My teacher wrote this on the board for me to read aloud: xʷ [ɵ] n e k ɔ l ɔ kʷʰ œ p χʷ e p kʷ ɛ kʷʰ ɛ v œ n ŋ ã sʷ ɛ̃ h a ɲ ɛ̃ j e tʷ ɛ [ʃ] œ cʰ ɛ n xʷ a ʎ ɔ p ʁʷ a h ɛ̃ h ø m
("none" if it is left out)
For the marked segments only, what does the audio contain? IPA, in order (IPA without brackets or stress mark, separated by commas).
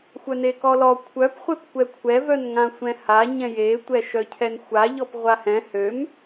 œ, ʃ